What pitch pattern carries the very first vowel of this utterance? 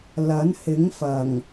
rising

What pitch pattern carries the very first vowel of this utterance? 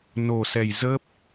low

